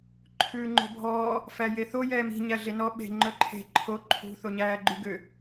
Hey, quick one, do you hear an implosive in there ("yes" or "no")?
yes